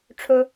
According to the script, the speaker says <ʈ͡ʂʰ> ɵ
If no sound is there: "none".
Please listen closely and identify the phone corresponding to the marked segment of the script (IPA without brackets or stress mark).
ʈ͡ʂʰ